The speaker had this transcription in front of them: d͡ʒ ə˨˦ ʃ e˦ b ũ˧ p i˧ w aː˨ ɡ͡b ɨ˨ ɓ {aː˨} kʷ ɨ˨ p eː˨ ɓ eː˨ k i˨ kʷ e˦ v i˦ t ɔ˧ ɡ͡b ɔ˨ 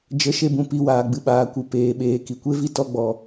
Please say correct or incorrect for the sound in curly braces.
correct